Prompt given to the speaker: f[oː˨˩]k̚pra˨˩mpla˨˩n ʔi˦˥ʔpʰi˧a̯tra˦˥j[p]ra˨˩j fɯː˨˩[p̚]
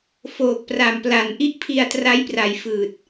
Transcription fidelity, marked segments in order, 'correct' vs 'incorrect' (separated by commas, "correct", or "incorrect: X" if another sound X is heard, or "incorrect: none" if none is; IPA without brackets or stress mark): correct, correct, incorrect: t̚